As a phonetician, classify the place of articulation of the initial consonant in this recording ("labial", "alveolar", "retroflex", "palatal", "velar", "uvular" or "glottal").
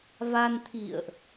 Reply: labial